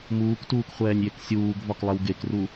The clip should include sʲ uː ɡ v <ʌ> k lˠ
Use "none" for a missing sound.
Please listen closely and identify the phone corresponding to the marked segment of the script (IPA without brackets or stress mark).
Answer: ɒ